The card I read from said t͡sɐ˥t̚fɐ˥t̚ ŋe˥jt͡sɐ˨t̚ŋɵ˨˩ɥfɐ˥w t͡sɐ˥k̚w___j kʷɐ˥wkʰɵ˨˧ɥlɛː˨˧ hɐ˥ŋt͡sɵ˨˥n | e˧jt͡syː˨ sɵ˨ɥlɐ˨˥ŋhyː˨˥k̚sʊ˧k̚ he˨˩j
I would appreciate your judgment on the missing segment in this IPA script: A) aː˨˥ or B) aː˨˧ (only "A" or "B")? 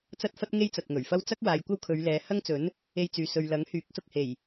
B